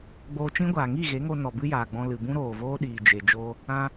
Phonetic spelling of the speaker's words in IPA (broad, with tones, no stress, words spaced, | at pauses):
ɡ͡boː˧t͡ʃĩ˦ɡʷaː˨ ŋi˦˨ɣe˨˦ŋo˧ nɔ˨bɨ˦jaː˨ɡ͡bɔ̃˧ lɨ˨ bũ˦ɾoː˨voː˦ɗiː˨ d͡ʒe˨ d͡ʒoː˦ | ã˧